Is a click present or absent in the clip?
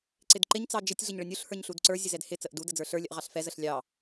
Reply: present